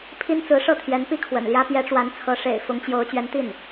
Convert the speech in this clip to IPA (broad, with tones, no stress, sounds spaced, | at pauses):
pʰ i˥ n t͡s ɹ̩˧˥ ʂ ɤ˥˩ t̪ʰ j ɛ˧˥ n p i˥ kʰ w ə̰˨˩ n l j ä˥ p j ɛ˧˥ ʈ͡ʂ w a˧˥ n t͡sʰ ɤ˧˥ ʂ ḛ˨˩ ɪ̯ f ʊ˧˥ ŋ t͡ɕ j o˧˥ ʊ̯ t͡ɕ ɥ ɛ˧˥ n t̪ i˥˩ n